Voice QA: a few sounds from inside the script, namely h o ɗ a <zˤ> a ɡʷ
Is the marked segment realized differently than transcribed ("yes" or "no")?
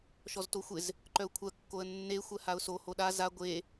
yes